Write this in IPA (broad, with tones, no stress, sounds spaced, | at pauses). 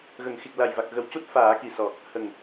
ɣ ə˨˩˨ ŋ x i˨˩ k̚ l a˨˩ j v a˨˩ k̚ ɣ ə˨˩ w c u˦˥ t̚ f aː˨˩˦ k i˨˩ s ɔ˨˩ | h ə˨˩ ŋ